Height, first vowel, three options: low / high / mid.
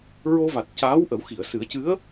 mid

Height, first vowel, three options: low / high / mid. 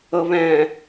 mid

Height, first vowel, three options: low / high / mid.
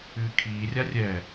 high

